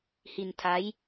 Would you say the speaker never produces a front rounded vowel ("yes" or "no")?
yes